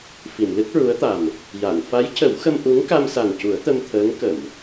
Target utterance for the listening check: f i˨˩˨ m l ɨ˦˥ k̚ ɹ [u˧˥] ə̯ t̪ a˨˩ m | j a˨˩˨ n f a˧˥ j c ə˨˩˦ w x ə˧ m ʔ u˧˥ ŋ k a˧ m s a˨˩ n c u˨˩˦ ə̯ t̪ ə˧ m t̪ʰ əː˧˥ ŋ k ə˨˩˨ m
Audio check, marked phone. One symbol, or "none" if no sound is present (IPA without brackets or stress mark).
u˧˥